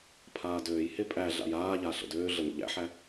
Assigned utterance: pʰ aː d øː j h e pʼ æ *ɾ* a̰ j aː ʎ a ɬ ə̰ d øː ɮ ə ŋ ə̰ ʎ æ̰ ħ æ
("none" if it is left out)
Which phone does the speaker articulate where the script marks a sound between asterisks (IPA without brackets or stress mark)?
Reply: ɮ